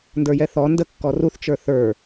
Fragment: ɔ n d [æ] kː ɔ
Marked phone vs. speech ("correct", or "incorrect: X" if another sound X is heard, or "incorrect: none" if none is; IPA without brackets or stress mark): incorrect: ə